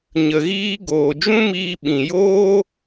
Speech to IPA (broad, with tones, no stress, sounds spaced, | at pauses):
ɲ ə˧ ɣ iː˦ ɡ oː˨ d͡ʒ ũ˦ m iː˧ ɓ ĩ˨ j oː˦